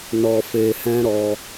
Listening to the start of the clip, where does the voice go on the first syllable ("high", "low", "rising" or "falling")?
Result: low